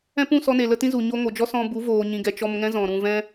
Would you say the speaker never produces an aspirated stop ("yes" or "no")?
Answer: yes